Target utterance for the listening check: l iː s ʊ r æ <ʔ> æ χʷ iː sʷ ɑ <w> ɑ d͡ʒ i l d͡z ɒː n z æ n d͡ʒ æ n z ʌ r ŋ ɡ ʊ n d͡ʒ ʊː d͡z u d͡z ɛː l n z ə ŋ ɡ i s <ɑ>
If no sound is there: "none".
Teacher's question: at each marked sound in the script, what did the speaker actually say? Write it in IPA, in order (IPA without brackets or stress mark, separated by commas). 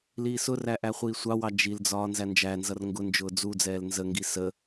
ʔ, w, ə